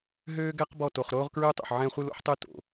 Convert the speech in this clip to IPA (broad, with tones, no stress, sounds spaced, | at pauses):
ɦ øː˦ ɡ ɛ˦ q b ɔ˦˨ t o˨ χ ɾ oː˦ ʁ k ɹ ø˦ tˤ o̰˨ ħ ʕ ɛ̃˦ χʷ ɨ˦ l o̰˦ ħ tˤ ø˦ t o̰˨